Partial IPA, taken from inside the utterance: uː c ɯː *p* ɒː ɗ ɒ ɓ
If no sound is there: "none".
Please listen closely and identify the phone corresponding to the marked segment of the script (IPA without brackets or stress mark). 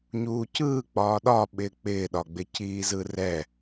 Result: k͡p